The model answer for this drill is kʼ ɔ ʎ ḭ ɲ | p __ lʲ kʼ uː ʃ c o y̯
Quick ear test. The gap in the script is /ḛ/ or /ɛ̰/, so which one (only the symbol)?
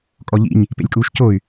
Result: ḛ